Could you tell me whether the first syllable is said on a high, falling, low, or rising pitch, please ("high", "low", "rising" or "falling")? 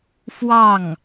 falling